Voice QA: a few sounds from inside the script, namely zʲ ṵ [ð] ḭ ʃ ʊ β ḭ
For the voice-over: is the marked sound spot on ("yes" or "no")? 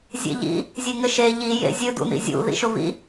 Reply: yes